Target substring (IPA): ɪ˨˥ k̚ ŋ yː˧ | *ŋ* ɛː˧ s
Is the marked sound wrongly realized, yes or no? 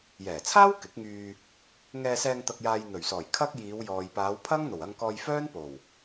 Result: no